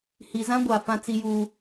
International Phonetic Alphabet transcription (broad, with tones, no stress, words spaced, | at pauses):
hi˨zã˦ɡʷa˨ fã˦t͡si˦ju˦